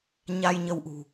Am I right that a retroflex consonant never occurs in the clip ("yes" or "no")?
yes